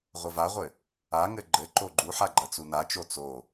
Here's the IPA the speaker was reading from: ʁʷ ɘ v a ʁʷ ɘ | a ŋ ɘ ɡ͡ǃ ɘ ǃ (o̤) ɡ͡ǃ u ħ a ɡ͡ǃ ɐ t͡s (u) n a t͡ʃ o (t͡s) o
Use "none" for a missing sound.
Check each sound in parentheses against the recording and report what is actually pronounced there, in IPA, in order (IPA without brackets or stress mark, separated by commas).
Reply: o, u, t͡s